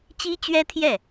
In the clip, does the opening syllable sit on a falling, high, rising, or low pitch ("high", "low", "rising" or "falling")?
high